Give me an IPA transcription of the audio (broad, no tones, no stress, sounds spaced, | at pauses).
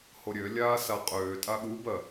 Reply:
h o ɾʲ ø lʲ aː s a qʼ øː tʼ a ɠ u b ɜ